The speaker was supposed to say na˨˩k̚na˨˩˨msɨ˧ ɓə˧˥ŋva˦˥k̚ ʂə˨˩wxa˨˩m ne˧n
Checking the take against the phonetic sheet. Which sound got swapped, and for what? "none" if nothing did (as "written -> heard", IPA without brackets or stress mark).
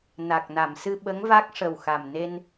none